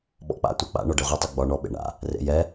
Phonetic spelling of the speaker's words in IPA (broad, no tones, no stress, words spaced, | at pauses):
ɓɔ̰k͡pa̰ tʷɛk͡pa̰ ɳɔɖeʁʷɐ tˤiɡ͡bɒ ɳɔ ɓḛɳa̰ | rḛjɛ